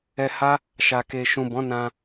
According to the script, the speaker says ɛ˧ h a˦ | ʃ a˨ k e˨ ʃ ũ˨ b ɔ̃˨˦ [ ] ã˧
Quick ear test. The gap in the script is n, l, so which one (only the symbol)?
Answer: n